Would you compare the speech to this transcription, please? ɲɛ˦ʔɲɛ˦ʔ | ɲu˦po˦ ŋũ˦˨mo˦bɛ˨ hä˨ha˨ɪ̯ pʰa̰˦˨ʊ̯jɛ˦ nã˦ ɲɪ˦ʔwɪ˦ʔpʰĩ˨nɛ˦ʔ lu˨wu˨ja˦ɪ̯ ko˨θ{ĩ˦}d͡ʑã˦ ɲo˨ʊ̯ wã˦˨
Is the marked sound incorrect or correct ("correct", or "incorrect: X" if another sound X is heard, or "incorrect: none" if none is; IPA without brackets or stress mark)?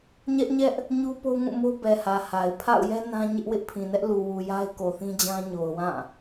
correct